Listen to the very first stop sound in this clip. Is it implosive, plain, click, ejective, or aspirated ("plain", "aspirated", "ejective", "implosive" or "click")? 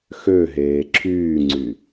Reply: click